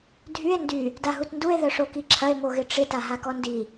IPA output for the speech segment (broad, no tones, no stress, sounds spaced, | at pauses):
dʱ y e̯ n d y | d a ɦ u t n d u e̯ ð œ ʂ o k i ǁʰ ɐ e̯ m o ɣ ɪ ʈ͡ʂ ɪ t a ɦ a k ɔ n d i